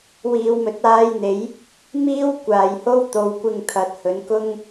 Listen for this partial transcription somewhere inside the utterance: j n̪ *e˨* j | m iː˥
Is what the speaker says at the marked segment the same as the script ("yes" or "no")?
no